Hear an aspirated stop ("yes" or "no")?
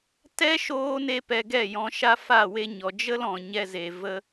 no